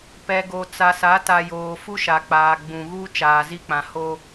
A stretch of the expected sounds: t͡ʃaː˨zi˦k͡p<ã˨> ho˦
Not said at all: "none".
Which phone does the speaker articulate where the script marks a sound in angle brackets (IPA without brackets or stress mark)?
ã˨